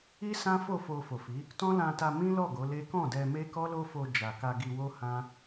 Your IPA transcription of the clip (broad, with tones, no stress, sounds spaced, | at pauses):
i˦ s ã˦ f o˦˨ f o˧ f o˨ f i˨˦ | t ɔ̃˦ l ã˧ t a˧ m ĩ˦ l ɔ˦˨ ɡ o˨˦ l e˦ k ɔ̃˦˨ d ɛ˧ m e˦ k ɔ˦ l o˦ f o˧ d͡ʒ a˨ k a˧ ɡ i˧ w o˦ h ã˦